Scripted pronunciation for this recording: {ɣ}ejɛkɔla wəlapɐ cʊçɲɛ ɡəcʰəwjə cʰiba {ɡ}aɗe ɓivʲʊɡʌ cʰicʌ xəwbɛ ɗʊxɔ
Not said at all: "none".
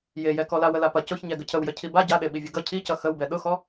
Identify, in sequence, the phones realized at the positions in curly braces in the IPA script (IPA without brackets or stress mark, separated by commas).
j, ɟ